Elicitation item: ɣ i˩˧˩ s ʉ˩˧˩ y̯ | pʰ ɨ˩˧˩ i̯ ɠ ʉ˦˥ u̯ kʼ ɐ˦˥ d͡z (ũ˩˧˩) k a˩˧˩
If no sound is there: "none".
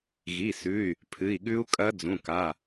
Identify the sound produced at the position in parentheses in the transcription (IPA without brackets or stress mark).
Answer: ũ˩˧˩